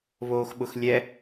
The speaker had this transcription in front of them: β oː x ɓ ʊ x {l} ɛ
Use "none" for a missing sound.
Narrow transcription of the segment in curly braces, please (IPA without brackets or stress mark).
lʲ